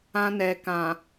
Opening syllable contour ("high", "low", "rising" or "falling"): high